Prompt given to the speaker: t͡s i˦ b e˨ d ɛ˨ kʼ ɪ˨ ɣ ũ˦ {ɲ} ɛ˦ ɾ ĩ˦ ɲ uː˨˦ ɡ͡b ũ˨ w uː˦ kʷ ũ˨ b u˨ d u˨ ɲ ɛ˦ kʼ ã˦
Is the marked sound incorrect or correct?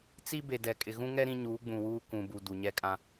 incorrect